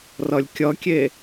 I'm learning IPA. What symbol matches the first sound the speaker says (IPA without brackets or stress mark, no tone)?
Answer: r